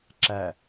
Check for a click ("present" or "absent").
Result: present